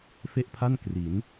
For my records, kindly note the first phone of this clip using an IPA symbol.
f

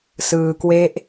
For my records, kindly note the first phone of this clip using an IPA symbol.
s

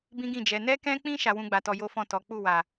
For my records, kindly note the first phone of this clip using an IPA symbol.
b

